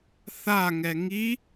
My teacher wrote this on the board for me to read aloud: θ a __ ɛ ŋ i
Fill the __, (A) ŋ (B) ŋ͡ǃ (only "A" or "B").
A